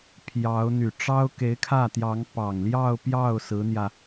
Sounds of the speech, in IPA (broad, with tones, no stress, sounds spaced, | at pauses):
pʰ j ɑ˧˥ ʊ̯ n̪ y˨˩ ʈ͡ʂ ɑ˥ ʊ̯ k e˧˥ ɪ̯ kʰ ä˥˩ t̪ j ɑ˧˥ ŋ p ɑ˨˩ ŋ l j ɑ˥˧ ʊ̯ p j ɑ˥˩ ʊ̯ s ɹ̩˧˥ n̪ j ä˧